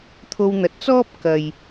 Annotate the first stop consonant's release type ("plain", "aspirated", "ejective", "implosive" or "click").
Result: aspirated